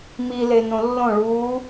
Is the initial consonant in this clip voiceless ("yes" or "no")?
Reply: no